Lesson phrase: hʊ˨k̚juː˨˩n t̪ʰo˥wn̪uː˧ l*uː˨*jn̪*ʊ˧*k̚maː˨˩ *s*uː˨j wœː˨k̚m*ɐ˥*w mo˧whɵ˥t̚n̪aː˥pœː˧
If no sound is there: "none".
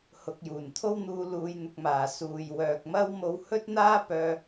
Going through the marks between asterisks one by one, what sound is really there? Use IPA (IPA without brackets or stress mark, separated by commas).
uː˨, ʊ˨, s, ɐ˥